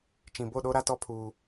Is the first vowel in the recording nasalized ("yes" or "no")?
yes